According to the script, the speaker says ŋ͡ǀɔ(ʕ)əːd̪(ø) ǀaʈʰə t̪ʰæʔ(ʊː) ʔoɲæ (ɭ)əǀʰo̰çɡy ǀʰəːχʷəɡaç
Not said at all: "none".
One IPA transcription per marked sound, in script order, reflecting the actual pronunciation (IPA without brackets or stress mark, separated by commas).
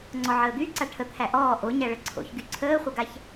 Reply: ʕ, y, ɔː, ɭ